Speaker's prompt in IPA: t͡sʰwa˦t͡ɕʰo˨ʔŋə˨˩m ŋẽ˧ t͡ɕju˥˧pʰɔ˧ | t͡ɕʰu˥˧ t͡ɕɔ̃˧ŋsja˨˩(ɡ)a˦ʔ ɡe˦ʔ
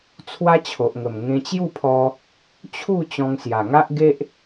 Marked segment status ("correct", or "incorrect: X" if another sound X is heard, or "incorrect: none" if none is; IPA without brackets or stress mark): incorrect: ŋ